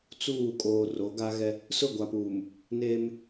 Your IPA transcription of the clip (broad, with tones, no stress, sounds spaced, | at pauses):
t͡s uː˦˨ kʼ oː˨ r o˨˦ ɡ a˦ ɣ ɛ˦ | s ʊ˦˨ ɡʷ a˨ p uː˨ m | n eː˦ m